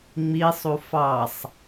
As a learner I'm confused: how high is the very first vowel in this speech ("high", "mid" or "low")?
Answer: high